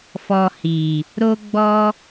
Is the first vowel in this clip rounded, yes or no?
yes